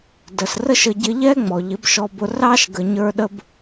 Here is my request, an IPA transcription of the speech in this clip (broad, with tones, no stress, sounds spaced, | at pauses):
d ə˨ s r ə˦ ʃ ə˧ ɟ ɪ˧ ʎ ɛ˦ ŋ͡m ɔ˨ ʎ ɪ˨˦ b ʃ ɔ˧ b ʊ˧ r ɑ˦ ʃ ɡ ə˨ ɲ ə˞˧ ɗ ə˦ b